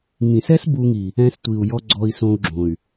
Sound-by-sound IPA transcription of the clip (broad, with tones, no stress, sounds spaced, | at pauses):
ŋ ĩ˨ s ɛ˦ s b u˧ ŋ i˨ | ɛ̃˧ s tʷ i˨ u̯ j ɔ˧ ɡ͡ǀ ɔ˧ i̯ s õ˧ u̯ ɡ͡ǁ õ˨ y̯